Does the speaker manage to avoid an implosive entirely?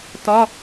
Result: yes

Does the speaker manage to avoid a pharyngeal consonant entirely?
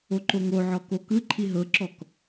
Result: no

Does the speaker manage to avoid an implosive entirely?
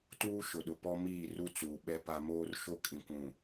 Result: no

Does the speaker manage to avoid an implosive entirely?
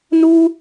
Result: yes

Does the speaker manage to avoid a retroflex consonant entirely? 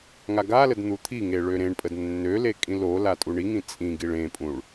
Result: no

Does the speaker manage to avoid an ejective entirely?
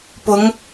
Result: yes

